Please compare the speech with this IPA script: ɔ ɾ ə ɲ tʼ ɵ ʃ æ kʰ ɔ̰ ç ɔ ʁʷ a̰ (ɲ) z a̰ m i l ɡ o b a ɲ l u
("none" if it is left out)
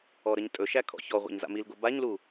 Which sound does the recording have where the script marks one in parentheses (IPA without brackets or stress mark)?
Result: ɲ